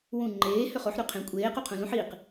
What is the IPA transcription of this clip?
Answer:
w ũ ŋ͡ǃ eː h ʏ χ o ħ ɾ ʉ qʰ ẽ kʷʼ eː q u qʰ ũ l ũ ħ i q

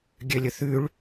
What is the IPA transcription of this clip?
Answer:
ɡʲ ø lʲ ɵ θ ʉ ɭ

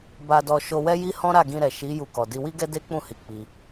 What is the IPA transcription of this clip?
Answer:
b a˧ d ɔ˧ ʃ o˧ w ɛ˦ j i˦ h ɔ̃˦ ɾ a˦˨ ɡ ĩ˧ ɾ ɛ˨ ʃ i˨˦ j u˧ k ɔ˨ d i˧ w i˦ ɡ ɛ˦ d e˦ k͡p ũ˦˨ h i˨˦ k͡p i˧

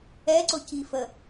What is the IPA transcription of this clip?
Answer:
ɛ ǀ ʊ c i f ə

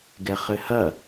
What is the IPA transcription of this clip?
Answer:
ɡ ɛ χ ɘ h ɐ

